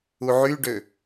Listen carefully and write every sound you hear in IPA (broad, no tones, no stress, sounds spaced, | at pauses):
u ʕ y ɖ ø